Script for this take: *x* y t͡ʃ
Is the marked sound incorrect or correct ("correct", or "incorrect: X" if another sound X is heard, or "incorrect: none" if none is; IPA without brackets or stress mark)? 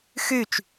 correct